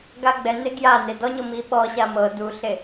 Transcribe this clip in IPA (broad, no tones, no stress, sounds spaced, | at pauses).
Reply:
ɡ a ɡ͡b ɛ n e ɡ j a n e d ɔ ɲ ɤ m i ɓ ɔ ɕ a m ɤ d u ɬ e